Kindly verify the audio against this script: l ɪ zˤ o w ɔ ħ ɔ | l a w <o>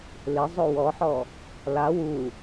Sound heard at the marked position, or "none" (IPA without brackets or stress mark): u